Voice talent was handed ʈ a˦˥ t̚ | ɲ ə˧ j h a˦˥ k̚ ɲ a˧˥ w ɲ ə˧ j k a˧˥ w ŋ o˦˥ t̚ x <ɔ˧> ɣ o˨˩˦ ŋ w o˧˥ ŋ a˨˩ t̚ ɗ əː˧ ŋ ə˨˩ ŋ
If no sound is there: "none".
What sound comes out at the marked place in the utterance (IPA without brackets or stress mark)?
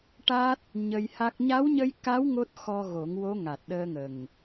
ɔ˧